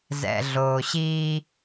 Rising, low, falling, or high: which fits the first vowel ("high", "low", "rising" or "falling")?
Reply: low